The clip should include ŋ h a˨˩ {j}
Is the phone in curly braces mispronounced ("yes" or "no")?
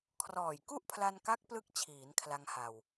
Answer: yes